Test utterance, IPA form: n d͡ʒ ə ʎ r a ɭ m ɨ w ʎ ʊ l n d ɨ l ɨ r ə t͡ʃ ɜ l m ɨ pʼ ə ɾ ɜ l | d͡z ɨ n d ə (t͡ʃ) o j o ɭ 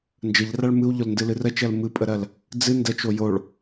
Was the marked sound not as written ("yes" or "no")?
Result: no